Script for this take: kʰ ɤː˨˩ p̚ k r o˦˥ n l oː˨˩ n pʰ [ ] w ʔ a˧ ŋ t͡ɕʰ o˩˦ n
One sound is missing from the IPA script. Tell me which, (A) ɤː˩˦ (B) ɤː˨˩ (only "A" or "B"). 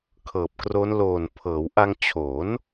A